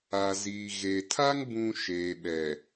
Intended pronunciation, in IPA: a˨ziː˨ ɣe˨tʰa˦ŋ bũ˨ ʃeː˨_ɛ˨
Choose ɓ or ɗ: ɓ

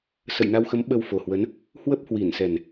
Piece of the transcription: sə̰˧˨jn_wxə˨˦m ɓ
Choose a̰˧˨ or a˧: a˧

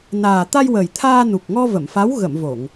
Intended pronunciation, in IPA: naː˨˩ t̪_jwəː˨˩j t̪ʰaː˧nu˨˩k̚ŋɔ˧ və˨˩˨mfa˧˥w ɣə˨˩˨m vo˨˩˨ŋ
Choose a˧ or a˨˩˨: a˧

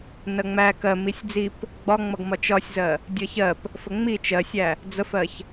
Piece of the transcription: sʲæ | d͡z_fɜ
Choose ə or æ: ə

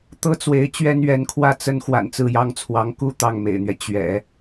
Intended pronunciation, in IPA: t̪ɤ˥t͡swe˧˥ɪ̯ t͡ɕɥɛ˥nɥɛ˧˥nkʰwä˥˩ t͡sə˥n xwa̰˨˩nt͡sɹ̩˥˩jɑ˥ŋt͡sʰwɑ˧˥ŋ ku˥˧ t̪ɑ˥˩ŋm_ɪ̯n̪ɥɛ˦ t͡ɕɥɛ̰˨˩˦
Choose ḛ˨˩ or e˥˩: ḛ˨˩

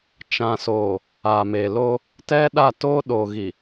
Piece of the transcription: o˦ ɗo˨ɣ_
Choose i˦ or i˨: i˨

